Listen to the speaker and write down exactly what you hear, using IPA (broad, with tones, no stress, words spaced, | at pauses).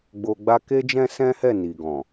ɡ͡bo˧ɡ͡ba˦ ke˦d͡ʒɛ̃˦sɛ̃˦hɛ˦˨ ni˨ɡɔ̃˨